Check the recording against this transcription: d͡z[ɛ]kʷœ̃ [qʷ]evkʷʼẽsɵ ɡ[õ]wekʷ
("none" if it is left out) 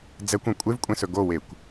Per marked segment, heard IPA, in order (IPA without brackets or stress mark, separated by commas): ɛ, kʷʼ, o